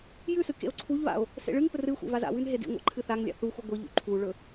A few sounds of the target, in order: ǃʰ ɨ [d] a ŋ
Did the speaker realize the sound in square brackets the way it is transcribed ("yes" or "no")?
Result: no